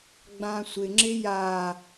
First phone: ɡ͡b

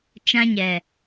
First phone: t͡ʃ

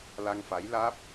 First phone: l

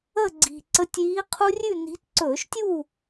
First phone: ə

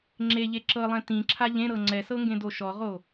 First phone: ŋ͡ǁ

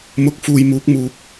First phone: m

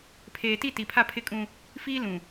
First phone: pʰ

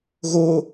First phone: ɣ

